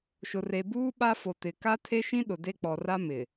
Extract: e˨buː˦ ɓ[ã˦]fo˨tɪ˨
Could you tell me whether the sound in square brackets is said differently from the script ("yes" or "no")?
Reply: yes